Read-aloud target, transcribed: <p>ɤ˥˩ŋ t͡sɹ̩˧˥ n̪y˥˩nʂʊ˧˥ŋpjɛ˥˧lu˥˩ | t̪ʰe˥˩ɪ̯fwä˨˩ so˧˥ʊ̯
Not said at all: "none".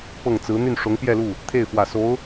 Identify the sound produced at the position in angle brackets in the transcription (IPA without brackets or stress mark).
p